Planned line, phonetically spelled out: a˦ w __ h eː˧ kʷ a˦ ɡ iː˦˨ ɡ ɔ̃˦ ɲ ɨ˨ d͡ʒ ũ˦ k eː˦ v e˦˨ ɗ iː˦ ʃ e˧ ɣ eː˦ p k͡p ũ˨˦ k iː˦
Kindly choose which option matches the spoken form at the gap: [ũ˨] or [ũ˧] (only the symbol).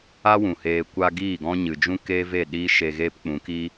ũ˨